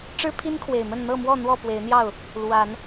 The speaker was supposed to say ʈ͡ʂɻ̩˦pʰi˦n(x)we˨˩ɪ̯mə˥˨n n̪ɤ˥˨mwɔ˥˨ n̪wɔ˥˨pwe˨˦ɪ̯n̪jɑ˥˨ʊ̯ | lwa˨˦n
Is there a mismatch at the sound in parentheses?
yes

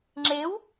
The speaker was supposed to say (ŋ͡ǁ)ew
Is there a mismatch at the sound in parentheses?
no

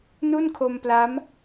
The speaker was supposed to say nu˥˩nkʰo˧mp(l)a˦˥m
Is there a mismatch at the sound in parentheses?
no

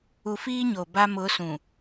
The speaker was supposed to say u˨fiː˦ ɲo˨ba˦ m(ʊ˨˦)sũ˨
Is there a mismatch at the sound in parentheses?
no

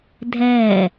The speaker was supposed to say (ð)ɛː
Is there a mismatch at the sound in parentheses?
yes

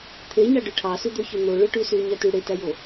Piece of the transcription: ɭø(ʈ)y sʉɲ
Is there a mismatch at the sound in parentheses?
no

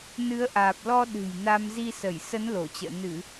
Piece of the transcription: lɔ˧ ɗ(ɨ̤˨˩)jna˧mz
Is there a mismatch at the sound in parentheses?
no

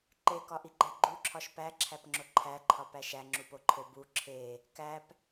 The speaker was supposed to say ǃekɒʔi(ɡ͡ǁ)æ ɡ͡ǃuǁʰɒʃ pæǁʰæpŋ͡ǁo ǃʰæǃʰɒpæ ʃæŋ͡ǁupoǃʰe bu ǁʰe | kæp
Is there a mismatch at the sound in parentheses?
yes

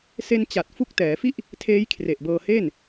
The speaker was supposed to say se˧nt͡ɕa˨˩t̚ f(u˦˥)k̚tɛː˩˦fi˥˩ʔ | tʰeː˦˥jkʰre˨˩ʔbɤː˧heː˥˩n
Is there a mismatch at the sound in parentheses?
no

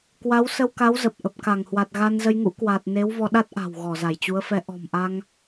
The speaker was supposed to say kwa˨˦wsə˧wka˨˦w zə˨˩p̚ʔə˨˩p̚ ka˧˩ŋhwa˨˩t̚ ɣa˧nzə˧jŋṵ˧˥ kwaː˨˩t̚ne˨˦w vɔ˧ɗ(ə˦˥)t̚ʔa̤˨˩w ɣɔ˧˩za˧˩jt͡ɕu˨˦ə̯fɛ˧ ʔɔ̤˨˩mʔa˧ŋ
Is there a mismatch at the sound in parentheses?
yes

